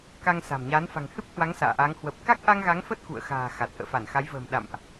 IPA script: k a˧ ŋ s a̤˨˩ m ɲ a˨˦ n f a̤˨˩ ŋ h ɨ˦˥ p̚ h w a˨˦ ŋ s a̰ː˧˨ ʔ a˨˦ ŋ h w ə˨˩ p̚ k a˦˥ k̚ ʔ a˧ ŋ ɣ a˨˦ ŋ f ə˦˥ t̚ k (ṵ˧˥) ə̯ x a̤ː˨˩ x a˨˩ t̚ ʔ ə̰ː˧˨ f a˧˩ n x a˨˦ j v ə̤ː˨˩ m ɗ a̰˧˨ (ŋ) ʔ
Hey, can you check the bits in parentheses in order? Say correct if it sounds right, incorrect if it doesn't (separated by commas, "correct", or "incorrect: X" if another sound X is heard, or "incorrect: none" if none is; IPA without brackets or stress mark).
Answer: incorrect: ṵ˧˨, incorrect: m